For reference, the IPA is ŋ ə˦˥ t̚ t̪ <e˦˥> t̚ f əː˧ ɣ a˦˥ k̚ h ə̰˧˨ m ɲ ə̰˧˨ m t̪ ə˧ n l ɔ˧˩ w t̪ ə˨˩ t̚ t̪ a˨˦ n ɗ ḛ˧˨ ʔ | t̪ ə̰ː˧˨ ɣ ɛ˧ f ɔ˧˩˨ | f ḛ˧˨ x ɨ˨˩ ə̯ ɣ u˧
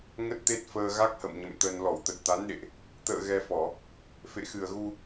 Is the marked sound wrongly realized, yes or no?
no